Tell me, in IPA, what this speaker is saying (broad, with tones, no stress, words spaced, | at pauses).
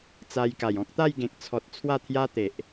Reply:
t͡sa˧jka˨˩jɔ̃˦k̚ t̪a˥˧jɡẽ˨k̚t͡sʰɔ˨t̚ t͡sʰwa˥˧t̪ʰja˦ t̪e˨ʔ